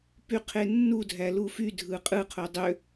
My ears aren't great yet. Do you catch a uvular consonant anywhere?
yes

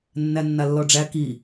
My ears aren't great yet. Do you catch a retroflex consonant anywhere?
yes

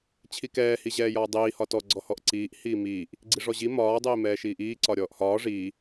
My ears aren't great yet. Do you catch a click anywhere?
yes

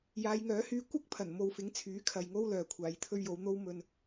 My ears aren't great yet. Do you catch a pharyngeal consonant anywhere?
no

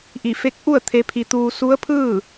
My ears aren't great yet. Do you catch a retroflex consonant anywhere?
no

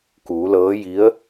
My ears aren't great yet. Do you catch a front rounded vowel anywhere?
no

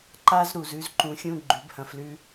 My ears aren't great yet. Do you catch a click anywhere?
yes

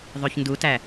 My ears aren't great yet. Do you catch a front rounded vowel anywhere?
yes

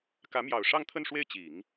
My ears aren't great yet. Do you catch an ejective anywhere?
no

